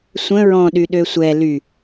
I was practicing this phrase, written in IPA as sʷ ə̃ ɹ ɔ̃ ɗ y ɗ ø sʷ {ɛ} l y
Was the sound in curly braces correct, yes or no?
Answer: yes